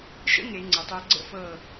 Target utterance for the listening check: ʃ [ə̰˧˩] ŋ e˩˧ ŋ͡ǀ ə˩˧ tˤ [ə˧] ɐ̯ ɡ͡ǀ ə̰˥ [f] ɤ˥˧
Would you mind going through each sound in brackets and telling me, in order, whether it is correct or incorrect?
incorrect: ə̰˥, incorrect: ʊ˧, correct

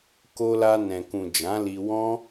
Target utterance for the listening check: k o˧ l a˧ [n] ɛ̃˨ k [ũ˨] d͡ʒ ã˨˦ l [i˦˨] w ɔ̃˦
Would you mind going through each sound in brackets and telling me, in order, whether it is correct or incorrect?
correct, correct, incorrect: i˧

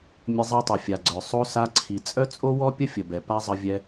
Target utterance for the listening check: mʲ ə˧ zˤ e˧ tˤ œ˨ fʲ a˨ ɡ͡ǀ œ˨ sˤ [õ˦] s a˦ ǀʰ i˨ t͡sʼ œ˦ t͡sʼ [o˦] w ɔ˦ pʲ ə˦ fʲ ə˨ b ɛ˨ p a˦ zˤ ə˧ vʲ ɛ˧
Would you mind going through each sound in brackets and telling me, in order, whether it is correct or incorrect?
incorrect: o˦, correct

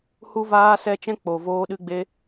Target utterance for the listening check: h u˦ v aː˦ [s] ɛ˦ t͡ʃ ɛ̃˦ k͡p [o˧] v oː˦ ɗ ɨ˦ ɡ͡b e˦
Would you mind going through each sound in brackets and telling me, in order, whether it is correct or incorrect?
correct, correct

